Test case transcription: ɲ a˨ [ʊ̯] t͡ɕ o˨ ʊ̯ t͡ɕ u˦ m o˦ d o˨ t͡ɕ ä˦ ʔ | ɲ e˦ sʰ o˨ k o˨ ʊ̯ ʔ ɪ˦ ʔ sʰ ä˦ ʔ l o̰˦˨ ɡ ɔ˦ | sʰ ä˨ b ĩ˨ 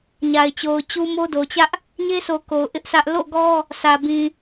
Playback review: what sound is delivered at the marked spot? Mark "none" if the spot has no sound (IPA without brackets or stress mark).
ɪ̯